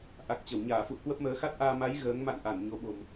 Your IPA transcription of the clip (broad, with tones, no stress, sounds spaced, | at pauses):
ʔ a˨˩ k̚ t͡ɕ ə˧˩ w ɲ aː˧˩ f ṵ˧˨ ə̯ k w ə˦˥ p̚ m əː˨˦ x a˦˥ t̚ ʔ aː˧ m a˨˦ j ɣ əː˨˦ ŋ m a̰˧˨ n ʔ a˧˩ n ɲ o˨˦ ɓ o̤˨˩ m